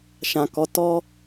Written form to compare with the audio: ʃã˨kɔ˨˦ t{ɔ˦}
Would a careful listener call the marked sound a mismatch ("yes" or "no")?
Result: no